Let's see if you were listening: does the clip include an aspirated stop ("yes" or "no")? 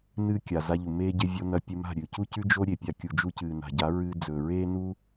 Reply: no